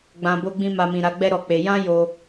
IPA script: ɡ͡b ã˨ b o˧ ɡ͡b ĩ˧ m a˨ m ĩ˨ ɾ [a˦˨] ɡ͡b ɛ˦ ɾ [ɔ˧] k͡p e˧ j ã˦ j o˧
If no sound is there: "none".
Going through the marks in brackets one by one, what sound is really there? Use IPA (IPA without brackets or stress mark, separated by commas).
a˨˦, ɔ˧